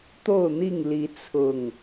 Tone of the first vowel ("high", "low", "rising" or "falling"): falling